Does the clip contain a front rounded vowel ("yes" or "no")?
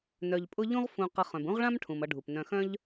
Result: yes